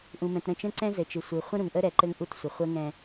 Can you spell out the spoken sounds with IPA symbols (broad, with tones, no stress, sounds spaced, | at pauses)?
ʔ ũ˨ m ɛ̃˨ t ɾ ə̃˦˨ t͡ʃ ə̃˦ ǀ ɛ̃˦ z ɘ˨ t͡ʃ ɨ˨ sʷ ɨ˨ χʷ ə̃˦ ɾ ũ˨ ŋ ʔ ə˦ ɾ ɛ˨˦ ǃ ɘ˦ ŋ ʔ u˦ t sʷ ə˨ χʷ ə˦ ŋ ɛ̃˦